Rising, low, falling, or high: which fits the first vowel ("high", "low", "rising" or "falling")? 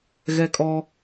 high